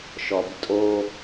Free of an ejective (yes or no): no